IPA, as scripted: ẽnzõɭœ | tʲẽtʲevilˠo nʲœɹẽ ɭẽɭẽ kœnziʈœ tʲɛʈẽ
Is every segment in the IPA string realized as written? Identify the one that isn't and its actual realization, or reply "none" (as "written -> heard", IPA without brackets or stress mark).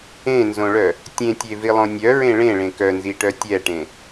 o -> õ